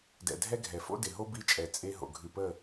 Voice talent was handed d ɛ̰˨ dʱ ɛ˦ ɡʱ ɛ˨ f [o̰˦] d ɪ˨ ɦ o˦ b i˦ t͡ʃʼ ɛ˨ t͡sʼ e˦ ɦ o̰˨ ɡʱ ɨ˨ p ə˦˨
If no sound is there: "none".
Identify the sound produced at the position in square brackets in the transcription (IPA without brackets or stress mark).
o̰˦